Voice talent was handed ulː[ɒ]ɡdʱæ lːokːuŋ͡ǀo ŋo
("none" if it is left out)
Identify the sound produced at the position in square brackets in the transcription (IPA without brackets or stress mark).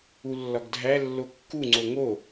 ɒ